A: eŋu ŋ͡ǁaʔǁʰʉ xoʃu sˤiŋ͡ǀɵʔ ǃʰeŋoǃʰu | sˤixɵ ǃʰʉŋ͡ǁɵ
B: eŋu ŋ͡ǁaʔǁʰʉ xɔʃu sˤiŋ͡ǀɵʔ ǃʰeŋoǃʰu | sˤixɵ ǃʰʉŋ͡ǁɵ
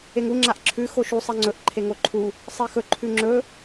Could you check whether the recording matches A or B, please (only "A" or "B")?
A